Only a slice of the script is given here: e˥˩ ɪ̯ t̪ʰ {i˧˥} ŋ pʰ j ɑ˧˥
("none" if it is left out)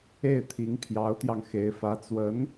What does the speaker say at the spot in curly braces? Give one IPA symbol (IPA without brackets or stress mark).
i˧˥